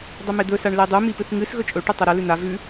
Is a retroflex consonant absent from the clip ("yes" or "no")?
no